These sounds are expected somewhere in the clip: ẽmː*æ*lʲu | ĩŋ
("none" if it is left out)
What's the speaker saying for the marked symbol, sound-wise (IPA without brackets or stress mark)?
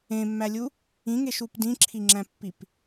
æ